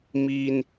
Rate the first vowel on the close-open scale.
close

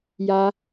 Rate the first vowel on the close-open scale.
open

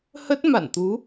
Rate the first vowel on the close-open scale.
mid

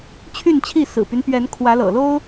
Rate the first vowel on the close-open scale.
close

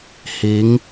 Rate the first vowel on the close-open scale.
close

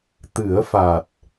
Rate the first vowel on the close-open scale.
close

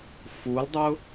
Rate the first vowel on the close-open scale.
close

